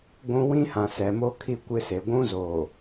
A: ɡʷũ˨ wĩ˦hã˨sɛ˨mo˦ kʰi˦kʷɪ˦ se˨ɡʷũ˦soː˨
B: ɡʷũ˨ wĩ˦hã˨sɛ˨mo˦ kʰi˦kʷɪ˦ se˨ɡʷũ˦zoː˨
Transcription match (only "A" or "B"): B